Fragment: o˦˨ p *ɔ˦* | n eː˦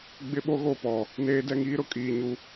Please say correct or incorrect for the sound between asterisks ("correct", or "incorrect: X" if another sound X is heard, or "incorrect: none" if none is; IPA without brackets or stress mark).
incorrect: ɔ˨